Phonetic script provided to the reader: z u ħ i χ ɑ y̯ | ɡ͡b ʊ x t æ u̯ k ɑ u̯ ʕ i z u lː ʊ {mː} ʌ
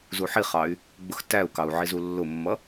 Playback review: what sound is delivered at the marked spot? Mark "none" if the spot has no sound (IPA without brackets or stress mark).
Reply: mː